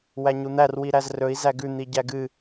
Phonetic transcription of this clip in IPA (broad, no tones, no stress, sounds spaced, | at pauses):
w æ ɲ u n̪ æ r w i ɾ æ z r ɵ i̯ z æ ɡ ʉ n̪ i ɟ æ ɡ ɨ